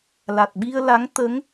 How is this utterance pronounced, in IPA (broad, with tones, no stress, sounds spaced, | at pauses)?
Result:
l a˨˩ t̚ ɓ i˧ ə̯ l a˧˥ ŋ t̪ ə˧˥ ŋ